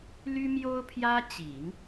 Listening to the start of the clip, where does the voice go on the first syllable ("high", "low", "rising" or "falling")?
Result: high